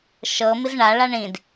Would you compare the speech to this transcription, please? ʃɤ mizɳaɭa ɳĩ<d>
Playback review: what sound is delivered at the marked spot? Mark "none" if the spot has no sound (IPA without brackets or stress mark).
d